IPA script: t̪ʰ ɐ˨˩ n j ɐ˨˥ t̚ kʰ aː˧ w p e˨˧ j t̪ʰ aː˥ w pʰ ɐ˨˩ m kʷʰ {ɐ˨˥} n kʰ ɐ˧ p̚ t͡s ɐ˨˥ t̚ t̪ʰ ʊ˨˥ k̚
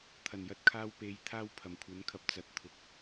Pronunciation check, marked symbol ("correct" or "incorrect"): correct